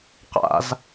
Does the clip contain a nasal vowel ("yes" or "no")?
no